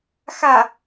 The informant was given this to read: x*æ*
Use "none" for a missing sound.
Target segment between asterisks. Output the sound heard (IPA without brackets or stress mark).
a